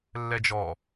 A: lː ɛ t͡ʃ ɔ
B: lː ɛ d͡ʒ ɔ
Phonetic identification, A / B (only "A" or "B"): B